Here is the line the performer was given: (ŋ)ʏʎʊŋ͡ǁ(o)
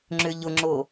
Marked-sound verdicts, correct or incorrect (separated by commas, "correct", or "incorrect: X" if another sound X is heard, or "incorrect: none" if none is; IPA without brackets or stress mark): incorrect: ŋ͡ǁ, correct